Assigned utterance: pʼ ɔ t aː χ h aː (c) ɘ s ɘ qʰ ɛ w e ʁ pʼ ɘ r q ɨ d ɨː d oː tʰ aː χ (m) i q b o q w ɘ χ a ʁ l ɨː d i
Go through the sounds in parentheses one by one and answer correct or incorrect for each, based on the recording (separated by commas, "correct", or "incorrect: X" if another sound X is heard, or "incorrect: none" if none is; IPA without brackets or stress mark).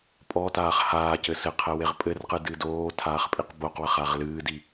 correct, incorrect: pʼ